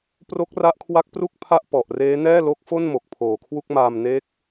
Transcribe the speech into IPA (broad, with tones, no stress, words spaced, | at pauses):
pro˦˥k̚ra˦˥ʔkʰwa˦˥k̚pru˥˩k̚ pʰa˥˩ʔpɔ˨˩ʔreː˦˥ nɛː˥˩lo˦˥k̚fo˥˩nmo˨˩k̚ pʰoː˨˩kʰwu˥˩k̚ maː˧mneː˦˥k̚